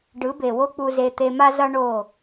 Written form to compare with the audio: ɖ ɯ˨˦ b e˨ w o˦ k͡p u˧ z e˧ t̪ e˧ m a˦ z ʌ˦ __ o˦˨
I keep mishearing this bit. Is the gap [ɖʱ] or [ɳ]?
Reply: ɳ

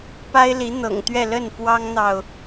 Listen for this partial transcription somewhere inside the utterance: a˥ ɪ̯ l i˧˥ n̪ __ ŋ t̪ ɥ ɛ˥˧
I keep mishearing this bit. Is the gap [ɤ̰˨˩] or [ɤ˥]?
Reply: ɤ̰˨˩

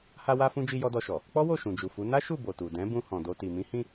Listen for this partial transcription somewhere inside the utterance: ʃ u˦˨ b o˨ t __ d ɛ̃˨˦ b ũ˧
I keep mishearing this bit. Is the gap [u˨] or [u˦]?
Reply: u˨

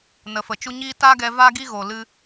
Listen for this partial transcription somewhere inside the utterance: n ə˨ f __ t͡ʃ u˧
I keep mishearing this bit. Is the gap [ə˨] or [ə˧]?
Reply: ə˨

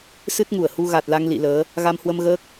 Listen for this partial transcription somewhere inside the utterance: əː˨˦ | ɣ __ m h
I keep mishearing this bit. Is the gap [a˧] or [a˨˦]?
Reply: a˧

